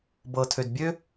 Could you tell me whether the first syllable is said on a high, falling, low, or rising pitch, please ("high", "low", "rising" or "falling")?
low